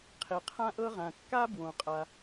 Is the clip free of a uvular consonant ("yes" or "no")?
no